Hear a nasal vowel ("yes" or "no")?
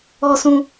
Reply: yes